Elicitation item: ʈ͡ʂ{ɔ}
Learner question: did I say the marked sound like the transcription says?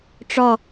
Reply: yes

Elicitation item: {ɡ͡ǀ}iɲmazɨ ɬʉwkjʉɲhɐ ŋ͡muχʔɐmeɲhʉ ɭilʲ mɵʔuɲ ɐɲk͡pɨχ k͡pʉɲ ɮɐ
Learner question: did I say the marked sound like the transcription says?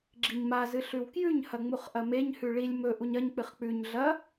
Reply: no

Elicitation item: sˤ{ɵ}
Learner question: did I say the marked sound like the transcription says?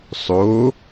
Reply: no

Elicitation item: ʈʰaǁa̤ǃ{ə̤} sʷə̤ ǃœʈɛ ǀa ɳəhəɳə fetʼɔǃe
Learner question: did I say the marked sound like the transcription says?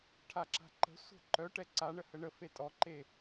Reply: yes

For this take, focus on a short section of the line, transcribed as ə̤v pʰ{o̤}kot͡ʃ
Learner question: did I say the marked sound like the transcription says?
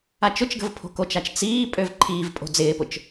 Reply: yes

